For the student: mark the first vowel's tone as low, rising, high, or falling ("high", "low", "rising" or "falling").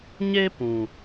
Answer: high